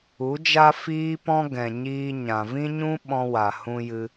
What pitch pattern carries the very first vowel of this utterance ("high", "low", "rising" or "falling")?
rising